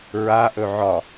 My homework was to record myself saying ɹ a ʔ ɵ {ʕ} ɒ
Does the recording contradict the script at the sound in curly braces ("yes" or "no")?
no